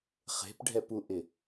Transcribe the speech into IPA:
χ e̤ p ɖʱ ɛ p u ʔ ɪ

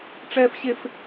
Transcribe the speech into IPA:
ʈ͡ʂ ɛː˦ f ɕ e˦ f

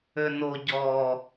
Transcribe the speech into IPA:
ø n o ɟ ɔ

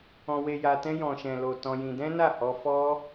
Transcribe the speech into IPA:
ɔ̃˧ w e˧ j a˧ t ɛ̃˧ j ɔ̃˨ ʃ ɛ̃˨ l o˨ t ɔ̃˧ j ĩ˧ d ɛ̃˦ n a˦˨ h ɔ˧ f ɔ˦

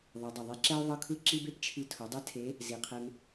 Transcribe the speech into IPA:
ðˤ ɤ˩˧ dˤ o˩ ðˤ e˧˥ ǁ ɛ˥ ʊ̯ ðˤ ɤ˥ kʰ ɯ˥ ǁ i˥ b e˥ p t͡ʃʰ i˧˥ tʰ o˩˧ dˤ ɛ˥ tʰ e˧˥ | z i˩ qʰ e˧ m

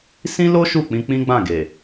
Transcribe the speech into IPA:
s ĩ˦ l o˦ ʃ u˦˨ k͡p ĩ˧ k͡p ĩ˦ ɡ͡b ã˦˨ ɡ e˨

